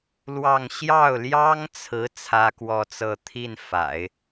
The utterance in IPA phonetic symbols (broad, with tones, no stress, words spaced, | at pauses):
lwɑ˥˧ŋ ɕjɑ˥˩ʊ̯ljɑ˥ŋt͡sʰɹ̩˧˥ t͡sʰä˥kwɔ˥˧t͡sɤ˥˧ t̪ʰi˥˩n fa̰˨˩˦ɪ̯